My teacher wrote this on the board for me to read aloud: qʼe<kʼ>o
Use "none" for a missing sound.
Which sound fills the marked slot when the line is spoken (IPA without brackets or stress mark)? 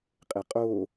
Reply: qʼ